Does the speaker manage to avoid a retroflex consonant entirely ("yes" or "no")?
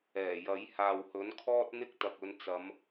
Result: yes